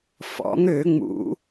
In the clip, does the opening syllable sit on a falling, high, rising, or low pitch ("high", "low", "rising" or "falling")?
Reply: rising